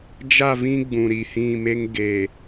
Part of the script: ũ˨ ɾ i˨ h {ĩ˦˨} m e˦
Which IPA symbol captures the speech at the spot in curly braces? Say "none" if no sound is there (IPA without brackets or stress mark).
ĩ˦˨